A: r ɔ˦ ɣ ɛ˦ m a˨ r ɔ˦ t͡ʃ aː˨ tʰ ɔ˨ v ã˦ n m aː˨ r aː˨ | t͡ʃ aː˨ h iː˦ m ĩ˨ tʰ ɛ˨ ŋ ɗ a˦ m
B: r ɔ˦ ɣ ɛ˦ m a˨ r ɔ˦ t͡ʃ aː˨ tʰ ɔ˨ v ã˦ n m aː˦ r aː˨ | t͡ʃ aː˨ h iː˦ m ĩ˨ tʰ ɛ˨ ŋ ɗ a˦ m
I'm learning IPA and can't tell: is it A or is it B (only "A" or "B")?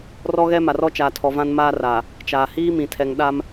B